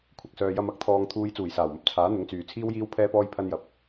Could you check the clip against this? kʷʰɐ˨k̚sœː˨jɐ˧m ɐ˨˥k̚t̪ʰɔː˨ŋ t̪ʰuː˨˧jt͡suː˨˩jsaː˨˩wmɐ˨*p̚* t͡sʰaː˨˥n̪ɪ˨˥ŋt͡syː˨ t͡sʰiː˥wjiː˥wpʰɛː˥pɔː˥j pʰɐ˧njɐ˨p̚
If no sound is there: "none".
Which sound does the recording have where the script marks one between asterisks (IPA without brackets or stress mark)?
p̚